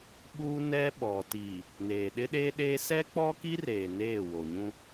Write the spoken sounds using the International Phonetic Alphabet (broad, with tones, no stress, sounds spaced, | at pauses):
ɓ u˦ n ɛ˦ ɓ ɔ˨ t iː˨ | n eː˨ ɗ ɪ˦ ɗ eː˦ ɗ eː˦ s ɛ˦ k͡p ɔ˦ k i˦ r eː˨ n eː˦˨ w o˨ ɲ ũ˦